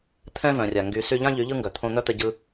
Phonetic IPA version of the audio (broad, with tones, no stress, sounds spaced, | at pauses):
t̪ʰ ɛ̃˦ v œ̃˨ rʲ a˨ ŋ ɡ y˨ s y˧ ʎ ã˦ ʎ y˨˦ ʎ ɯ˦ ŋ ɡ œ˨ t̪ʰ õ˧ n̪ œ˦ t̪ ɛ˧ ɟ ɯ˧